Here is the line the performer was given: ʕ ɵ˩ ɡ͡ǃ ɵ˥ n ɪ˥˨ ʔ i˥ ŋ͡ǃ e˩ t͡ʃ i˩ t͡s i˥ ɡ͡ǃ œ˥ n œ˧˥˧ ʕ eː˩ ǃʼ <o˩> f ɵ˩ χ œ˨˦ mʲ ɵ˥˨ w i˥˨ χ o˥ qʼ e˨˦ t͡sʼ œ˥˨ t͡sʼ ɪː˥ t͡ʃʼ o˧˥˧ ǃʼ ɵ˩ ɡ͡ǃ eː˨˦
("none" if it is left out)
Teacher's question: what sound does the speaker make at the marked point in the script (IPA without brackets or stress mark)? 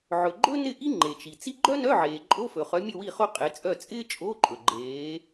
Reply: o˧˥˧